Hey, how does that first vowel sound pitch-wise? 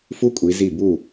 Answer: high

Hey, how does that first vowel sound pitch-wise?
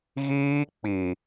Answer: high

